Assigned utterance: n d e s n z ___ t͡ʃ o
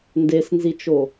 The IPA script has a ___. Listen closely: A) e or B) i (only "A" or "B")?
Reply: B